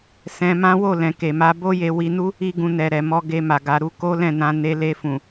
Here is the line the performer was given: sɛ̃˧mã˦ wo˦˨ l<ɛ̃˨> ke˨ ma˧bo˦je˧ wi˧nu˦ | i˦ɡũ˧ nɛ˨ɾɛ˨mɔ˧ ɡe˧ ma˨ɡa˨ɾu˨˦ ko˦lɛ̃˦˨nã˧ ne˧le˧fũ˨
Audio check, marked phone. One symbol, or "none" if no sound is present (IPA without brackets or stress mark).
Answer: ɛ̃˨